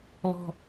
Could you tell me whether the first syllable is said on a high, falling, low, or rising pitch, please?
high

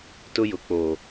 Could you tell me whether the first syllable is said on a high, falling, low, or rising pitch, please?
high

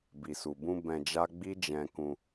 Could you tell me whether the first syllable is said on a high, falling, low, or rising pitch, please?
low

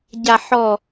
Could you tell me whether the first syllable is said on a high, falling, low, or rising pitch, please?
low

